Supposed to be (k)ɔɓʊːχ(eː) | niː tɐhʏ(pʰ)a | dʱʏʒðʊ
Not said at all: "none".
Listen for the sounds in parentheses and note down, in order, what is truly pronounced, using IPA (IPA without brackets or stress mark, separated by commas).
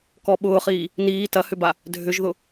k, iː, b